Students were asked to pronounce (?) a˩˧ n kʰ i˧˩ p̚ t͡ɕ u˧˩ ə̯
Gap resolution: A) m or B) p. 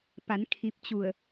B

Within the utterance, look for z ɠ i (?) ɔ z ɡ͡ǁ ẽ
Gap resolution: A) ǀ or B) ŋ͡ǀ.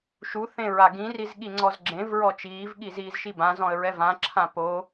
B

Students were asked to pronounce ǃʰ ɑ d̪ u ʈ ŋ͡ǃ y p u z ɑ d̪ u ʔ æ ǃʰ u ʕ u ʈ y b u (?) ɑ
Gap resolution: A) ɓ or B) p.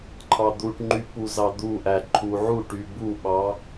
A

